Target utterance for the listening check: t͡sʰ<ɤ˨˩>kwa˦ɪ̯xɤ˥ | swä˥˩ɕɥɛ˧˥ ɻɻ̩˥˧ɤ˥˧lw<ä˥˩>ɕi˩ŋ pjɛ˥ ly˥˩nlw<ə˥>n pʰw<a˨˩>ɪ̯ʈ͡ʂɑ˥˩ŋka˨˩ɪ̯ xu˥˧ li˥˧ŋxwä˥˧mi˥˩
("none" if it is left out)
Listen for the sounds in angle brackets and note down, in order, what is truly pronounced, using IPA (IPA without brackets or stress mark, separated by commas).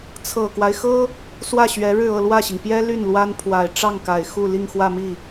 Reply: ɤ˨˩, ä˥˩, a˥, a˨˩